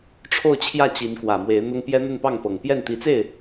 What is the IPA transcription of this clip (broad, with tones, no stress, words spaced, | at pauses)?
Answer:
ʈ͡ʂʰo˥˧ʊ̯t͡ɕʰjä˥˩ t͡ɕi˧˥nkwä˨˩mwe˧˥ɪ̯n̪ʊ˥ŋ pjɛ˥n̪ə˥˧npɑ˥˩ŋpɤ˨˩ŋ pjɛ˥˩nt̪i˧˥t͡se˥˩ɪ̯